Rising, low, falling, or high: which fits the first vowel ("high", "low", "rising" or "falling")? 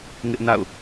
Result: high